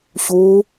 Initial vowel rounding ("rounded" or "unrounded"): rounded